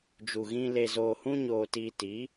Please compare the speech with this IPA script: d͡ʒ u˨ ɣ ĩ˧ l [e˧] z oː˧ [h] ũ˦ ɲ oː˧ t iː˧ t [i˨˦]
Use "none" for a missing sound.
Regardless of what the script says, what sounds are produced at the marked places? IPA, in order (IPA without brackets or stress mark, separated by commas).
e˧, h, i˨˦